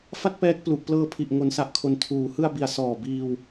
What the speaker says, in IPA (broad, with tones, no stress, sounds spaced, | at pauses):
f a˥˩ t̚ p ɛː˦˥ k̚ p l u˨˩ ʔ p l ɤː˧ pʰ i˨˩ ʔ ŋ o˩˦ n s a˨˩ ʔ kʰ o˩˦ n tʰ uː˩˦ h ɯ˧ a̯ b i˩˦ a̯ s ɔː˨˩ b iː˧ w